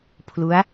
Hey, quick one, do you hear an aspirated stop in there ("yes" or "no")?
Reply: yes